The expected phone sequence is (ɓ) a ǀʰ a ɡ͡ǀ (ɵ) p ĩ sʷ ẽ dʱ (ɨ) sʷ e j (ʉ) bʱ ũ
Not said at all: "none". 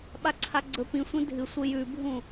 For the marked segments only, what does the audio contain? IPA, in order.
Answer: ɓ, ɵ, ɨ, ʉ

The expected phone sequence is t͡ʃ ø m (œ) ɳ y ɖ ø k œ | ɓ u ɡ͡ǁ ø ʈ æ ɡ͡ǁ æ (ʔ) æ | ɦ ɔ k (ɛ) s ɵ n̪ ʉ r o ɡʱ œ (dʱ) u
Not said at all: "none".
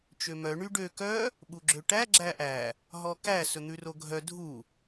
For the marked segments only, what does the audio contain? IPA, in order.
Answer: œ, ʔ, æ, dʱ

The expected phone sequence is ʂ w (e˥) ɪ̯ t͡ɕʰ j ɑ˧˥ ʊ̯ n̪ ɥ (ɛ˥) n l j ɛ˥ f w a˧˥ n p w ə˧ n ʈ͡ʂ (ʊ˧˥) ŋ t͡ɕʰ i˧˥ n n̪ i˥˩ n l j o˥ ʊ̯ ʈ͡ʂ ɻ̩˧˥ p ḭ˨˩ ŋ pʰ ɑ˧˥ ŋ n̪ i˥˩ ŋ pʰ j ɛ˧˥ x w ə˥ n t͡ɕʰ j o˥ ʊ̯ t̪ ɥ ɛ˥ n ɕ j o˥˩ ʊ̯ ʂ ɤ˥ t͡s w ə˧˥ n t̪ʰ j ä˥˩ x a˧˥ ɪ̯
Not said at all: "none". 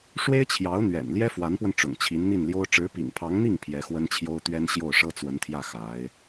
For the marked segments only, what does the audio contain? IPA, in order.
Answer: e˥, ɛ̰˨˩, ʊ̰˨˩

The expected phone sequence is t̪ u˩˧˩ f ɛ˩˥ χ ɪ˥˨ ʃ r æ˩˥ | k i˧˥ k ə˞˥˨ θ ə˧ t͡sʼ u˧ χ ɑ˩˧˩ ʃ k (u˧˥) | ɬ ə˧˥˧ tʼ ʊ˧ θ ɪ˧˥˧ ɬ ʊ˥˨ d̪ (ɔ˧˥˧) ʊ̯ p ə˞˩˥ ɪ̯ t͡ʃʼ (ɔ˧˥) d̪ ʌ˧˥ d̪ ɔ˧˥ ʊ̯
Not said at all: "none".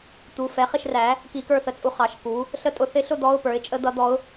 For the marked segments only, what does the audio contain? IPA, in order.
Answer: u˩˥, ɔ˧˥˧, ə˧˥

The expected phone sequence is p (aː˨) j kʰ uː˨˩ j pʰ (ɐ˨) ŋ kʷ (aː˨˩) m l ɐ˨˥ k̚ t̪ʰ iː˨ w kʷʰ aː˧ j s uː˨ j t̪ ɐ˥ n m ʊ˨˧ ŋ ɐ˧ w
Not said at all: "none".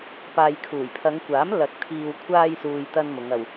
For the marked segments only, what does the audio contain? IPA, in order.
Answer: aː˨, ɐ˨˧, aː˨˥

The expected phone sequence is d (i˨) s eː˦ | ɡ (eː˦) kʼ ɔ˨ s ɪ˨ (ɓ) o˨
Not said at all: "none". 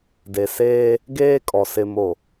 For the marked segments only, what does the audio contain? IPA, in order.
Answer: e˨, eː˦, m

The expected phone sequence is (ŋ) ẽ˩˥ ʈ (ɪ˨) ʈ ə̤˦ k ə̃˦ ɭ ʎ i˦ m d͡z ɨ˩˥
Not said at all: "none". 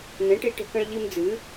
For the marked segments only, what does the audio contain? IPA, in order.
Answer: n, i˨

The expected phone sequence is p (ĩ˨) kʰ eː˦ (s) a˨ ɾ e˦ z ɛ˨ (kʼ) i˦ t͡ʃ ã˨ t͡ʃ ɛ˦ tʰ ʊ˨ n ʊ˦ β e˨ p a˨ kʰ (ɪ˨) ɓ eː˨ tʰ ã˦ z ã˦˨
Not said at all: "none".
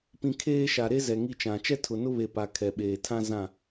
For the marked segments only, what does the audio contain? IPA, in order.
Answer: ĩ˨, ʃ, ŋ, ɛ˨

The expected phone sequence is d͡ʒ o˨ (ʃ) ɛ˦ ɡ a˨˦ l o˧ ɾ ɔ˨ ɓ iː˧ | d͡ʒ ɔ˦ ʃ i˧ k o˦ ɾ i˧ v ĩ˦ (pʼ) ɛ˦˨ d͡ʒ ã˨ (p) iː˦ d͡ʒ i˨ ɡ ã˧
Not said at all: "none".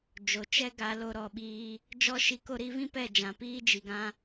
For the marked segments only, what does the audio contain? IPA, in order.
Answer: t͡ʃ, p, p

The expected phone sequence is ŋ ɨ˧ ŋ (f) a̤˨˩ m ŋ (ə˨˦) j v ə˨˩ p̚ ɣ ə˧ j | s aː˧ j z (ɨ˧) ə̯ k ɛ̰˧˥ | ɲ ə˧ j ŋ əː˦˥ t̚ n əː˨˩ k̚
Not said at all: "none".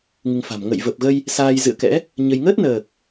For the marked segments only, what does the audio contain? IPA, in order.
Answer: f, ə̰˧˨, ɨ̰˧˨

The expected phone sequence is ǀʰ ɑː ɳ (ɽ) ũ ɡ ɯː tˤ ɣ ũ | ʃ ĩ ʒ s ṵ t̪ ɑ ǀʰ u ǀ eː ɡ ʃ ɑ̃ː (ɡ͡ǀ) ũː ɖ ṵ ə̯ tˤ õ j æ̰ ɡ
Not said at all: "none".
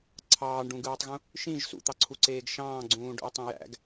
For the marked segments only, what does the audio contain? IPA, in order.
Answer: ɖ, ɡ͡ǀ

